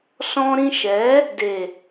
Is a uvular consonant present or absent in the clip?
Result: absent